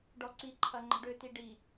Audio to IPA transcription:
ɖ ɔ ǀ i ǃʰ ɐ ŋ͡ǃ ə̤ ɖ ø t i ɖ i

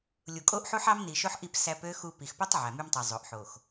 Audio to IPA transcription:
lʲ u˨ kʼ o˦ ʔ ħ u˦ ħ ɑ˦ m n i˨ ʃ o˦ ħ ʔ i˦˨ p s æ˦ p ø˦ x u˦ p i˨ x p o˦ tˤ ʕ æ˨ m y˦ m tˤ ø˨ zˤ o˨ ʔ ħ o˨ x

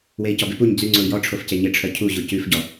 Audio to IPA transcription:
w e i̯ c ɔ b ɪ p u ɲ d͡z ʉ ŋ͡ǀ o i̯ j ɔ ʈ͡ʂʰ o f c e ɲ ɪ ʈ͡ʂʰ œ cʰ u ʑ u c ʉ f ɟ ɔ

